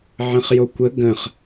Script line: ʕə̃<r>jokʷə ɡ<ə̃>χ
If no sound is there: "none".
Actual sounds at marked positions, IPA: χ, ə̃

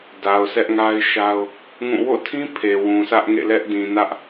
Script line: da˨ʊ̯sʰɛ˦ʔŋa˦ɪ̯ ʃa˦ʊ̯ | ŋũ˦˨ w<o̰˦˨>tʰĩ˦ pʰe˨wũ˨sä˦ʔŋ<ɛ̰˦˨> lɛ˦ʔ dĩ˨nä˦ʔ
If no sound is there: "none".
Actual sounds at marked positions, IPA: o̰˦˨, ḛ˦˨

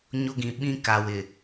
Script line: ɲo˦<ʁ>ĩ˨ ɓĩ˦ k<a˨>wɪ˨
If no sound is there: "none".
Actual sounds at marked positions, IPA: ɡ, a˨

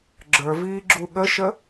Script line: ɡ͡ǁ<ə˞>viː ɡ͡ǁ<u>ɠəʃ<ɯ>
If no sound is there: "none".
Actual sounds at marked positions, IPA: ə˞, u, ə

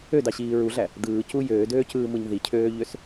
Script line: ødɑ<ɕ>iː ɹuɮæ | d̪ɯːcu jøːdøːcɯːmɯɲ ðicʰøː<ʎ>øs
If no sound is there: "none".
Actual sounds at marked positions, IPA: ɕ, ʎ

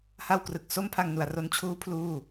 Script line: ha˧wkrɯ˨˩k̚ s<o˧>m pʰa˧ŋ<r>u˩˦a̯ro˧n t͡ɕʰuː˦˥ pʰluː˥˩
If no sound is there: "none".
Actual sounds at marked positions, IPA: o˧, n

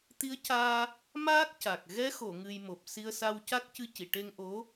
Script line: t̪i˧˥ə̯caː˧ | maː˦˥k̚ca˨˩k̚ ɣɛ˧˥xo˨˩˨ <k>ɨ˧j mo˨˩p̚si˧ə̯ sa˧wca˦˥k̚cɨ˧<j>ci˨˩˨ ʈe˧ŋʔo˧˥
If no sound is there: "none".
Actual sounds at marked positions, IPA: ŋ, none

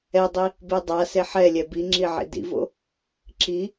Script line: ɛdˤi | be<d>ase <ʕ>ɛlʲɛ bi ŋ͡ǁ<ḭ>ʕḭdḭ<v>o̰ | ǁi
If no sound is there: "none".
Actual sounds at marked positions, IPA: dˤ, ħ, i, v

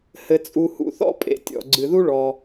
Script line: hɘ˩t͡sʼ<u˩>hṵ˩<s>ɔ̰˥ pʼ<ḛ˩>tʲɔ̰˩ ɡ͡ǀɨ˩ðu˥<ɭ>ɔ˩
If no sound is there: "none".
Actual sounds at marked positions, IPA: u˩, θ, ḛ˩, ɭ

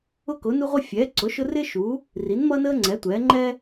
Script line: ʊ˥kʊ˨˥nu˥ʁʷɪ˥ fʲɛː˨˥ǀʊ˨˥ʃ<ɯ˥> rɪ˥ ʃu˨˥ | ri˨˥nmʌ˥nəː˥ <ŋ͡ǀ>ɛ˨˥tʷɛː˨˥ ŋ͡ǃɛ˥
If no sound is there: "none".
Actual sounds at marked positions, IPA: ʊ˥, ŋ͡ǀ

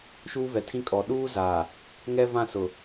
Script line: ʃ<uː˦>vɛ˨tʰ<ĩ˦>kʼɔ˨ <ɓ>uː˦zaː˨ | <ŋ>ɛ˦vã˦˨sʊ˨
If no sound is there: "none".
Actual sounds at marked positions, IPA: uː˦, ĩ˦, ɗ, ŋ

